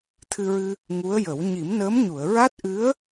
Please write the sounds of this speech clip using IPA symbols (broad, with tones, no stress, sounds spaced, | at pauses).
t̪ʰ ɨ˧ ɹ ɨ˧ | ŋ u˧˥ ə̯ j ə˨˩˦ w ɲ i˨˩˦ m n əː˧˥ m ɲ u˨˩˨ ə̯ ɹ a˦˥ t̚ ʔ ɨ˧˥ ə̯